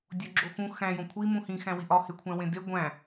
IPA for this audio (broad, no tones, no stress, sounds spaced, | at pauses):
dʲ o ɡ͡ǁ o x ũ x æ̃ j õ kʷʰ i m ũ h ĩ x æ̃ w i ʔ ɒ h e kʷʰ æ̃ w ẽ d e ɡʷ æ̃